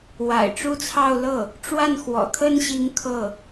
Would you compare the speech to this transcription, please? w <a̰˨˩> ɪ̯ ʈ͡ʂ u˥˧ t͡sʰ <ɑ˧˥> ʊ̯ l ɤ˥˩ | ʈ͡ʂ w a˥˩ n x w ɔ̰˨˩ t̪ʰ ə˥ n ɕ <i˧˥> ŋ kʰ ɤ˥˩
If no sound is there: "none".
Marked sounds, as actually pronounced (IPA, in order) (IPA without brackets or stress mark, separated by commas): a̰˨˩, ɑ˥˧, i˧˥